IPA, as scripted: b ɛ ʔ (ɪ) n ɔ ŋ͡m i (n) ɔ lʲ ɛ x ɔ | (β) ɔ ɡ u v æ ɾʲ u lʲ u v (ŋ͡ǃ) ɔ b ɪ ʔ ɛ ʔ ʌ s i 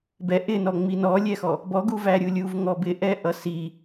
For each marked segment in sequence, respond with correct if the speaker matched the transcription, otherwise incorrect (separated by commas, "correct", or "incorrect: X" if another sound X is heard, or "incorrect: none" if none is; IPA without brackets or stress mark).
correct, correct, incorrect: b, incorrect: ŋ